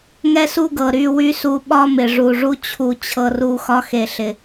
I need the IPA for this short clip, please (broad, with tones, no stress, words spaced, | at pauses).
ŋɛ˦su˦ɡɤ˨ ɾy˦˨wy˦su˧ ɓɒ˦mɪ˨ ʐu˨ʐu˧ t͡ɕʰu˨ t͡ɕʰɤ˧ru˧ xɒ˧xe˨ɬɪ˨